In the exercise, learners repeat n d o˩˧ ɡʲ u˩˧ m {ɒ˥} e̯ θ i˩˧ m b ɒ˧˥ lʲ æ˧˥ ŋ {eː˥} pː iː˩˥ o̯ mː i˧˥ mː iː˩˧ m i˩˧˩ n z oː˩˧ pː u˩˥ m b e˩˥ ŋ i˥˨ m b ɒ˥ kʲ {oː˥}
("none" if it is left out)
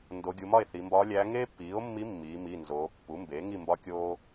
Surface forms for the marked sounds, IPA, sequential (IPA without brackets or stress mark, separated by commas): ɒ˥˨, eː˥, oː˥